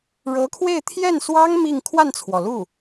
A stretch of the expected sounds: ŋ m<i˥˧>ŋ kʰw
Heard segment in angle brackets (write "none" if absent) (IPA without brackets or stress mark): i˥˧